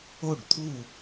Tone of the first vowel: falling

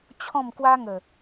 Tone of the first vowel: falling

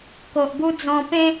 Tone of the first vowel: low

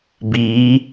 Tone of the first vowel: rising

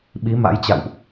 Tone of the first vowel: rising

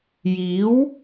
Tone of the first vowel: rising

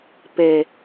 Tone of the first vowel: low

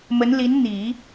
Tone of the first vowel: rising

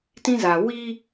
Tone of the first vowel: high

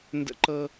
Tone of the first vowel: high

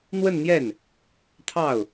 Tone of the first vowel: falling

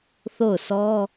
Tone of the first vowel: falling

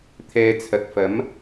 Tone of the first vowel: low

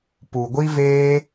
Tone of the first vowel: low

